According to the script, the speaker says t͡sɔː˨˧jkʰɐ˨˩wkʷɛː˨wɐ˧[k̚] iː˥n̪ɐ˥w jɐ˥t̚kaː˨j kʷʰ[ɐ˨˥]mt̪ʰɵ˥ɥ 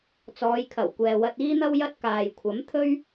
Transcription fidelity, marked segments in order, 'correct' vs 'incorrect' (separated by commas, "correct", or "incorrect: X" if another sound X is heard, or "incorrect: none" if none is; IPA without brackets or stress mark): incorrect: t̚, correct